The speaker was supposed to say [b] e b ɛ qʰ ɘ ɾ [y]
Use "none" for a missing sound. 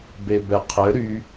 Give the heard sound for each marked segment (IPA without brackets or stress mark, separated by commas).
b, y